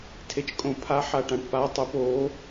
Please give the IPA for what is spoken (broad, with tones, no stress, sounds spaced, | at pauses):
tʰ e˨ t͡ʃ kʼ õ˨˩˦ pʰ a˨˥ ħ a˨ ʈ ã˨ ʈ p a˨˥ tˤ e˨˩˦ p o˨˥